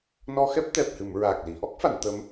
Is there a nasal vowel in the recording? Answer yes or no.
no